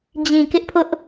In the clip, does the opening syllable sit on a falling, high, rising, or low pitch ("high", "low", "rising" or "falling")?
low